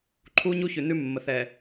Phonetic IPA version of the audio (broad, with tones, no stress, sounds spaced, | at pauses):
ǃʰ u˦ ɲ u˦ ç ʉ˨ n ʉ˦ mː ə˨ θ ɛ˨